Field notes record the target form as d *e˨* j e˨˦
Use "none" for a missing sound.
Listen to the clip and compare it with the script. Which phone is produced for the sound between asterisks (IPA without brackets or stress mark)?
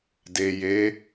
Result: e˨